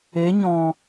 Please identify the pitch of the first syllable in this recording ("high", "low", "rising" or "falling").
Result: rising